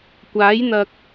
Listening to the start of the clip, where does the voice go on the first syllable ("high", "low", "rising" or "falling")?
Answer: rising